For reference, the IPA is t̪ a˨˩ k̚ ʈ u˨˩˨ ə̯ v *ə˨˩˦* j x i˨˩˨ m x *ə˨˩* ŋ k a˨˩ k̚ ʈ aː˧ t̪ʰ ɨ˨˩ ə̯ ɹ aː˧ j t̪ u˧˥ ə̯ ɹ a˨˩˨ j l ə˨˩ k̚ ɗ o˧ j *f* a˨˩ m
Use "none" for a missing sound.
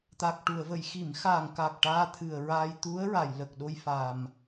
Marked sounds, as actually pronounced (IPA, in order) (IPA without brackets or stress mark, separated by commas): ə˨˩˨, a˨˩, f